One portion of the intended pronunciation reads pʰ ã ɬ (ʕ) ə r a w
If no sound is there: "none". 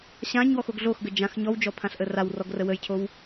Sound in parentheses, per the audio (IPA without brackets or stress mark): ʔ